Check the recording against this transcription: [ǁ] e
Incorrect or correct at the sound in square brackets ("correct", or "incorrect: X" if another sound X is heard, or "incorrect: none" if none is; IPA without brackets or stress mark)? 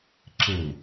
correct